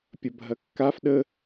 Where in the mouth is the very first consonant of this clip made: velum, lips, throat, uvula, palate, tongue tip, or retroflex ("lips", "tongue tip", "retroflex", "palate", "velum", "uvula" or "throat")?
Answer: lips